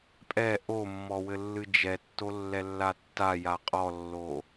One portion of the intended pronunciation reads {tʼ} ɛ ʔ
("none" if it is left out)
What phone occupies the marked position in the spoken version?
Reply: pʼ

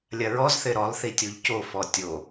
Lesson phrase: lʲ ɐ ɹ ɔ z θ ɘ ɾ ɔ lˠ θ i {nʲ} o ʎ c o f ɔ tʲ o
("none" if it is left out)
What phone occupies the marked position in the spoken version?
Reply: tʲ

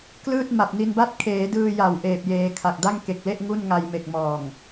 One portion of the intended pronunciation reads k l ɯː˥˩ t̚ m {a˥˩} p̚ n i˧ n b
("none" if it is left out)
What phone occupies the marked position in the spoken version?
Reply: a˨˩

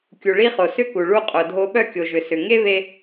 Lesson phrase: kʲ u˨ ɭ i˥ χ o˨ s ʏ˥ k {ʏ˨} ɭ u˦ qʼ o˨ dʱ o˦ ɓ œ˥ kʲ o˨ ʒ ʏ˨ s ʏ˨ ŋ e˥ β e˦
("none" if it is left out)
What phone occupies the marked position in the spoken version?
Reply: u˨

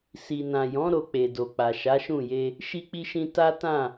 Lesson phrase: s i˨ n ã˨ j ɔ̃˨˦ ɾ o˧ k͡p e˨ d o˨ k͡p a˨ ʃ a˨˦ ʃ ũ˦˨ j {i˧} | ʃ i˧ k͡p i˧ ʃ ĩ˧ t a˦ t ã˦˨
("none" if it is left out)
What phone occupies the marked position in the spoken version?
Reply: e˧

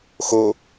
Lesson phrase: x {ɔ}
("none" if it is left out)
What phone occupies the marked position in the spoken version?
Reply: o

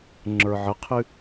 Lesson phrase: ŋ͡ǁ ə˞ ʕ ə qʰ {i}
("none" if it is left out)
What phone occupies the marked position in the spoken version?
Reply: ɨ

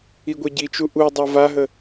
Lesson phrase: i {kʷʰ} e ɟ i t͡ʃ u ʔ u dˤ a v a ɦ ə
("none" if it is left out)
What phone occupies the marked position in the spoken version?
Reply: ɡʷ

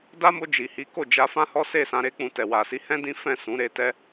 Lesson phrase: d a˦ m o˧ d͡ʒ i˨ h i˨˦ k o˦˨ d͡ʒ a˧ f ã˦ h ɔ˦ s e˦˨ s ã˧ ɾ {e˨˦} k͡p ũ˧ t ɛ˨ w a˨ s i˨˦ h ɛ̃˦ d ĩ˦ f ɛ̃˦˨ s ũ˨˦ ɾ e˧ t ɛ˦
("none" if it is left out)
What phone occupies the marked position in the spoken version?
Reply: e˦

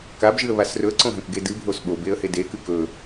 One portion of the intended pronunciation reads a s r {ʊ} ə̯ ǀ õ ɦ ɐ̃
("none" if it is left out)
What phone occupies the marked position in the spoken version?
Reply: ɵ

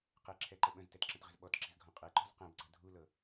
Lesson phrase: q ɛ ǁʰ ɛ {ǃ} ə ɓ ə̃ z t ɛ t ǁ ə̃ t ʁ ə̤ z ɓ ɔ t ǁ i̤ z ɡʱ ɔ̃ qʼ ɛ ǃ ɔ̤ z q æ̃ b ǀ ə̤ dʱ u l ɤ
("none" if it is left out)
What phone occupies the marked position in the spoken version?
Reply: ǃ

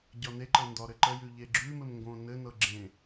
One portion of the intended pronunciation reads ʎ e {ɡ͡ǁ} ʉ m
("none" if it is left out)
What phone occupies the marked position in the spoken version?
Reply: ɡ͡ǁ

